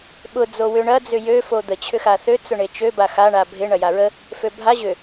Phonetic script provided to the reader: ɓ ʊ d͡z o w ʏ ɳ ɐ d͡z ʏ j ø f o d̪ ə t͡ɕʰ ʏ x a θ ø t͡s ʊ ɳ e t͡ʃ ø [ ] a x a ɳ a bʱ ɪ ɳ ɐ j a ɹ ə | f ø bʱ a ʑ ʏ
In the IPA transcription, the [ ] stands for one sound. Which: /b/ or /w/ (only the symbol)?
b